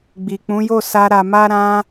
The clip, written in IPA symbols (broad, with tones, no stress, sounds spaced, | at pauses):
ɡ͡b i˨ k͡p ũ˨˦ j o˦˨ s a˧ ɾ a˨ m a˧ ɾ ã˧